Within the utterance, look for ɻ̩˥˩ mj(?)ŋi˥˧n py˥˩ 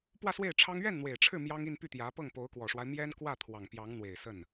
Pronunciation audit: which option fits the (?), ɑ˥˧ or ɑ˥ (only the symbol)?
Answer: ɑ˥